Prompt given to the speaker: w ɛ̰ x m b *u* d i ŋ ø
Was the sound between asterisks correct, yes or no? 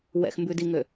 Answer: no